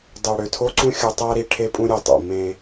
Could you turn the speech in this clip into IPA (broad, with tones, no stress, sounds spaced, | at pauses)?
dˤ ø˨ ɽ ø˨ tʰ o˦ ǀ ũ˦ xʲ o˨ tˤ æ˦ ɾ i˨ ʈʰ e˦ pʼ ũ˦ ɾʲ e˨ tˤ o̰˨ m ẽ˦